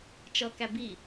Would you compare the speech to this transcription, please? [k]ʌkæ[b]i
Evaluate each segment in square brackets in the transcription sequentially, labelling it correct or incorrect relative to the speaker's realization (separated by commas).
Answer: incorrect, correct